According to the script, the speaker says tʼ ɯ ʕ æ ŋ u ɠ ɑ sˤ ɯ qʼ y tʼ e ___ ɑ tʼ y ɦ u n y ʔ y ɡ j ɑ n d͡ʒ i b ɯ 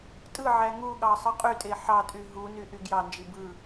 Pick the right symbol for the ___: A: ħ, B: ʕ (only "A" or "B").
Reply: A